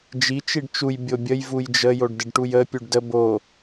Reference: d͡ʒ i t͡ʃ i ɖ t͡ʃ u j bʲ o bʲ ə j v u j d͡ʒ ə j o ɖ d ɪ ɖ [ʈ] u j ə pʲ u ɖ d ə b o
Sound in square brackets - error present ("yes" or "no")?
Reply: no